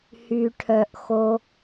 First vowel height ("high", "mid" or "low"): high